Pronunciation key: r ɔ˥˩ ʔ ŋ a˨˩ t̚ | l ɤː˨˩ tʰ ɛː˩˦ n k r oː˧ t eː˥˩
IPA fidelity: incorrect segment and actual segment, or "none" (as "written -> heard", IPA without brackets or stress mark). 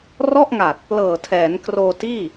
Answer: eː˥˩ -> iː˥˩